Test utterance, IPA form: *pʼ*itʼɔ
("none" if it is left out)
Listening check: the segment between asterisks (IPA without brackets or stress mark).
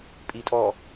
pʼ